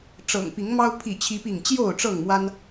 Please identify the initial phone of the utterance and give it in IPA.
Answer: ʈ͡ʂ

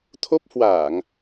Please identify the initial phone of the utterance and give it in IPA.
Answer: t̪ʰ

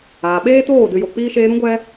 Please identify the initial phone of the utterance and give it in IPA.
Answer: aː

